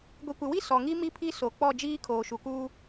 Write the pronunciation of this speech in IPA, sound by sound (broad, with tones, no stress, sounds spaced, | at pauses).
ɡʷ i˨ kʷ ɪ˨ w i˦ s ɔ˨ ŋ i˦ m i˦ pʰ i˦ s o˨ k͡p ɔ˦˨ d͡ʒ iː˦ kʰ oː˨ ʃ u˨ k uː˦